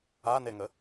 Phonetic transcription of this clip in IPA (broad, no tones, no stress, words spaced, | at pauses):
aneŋə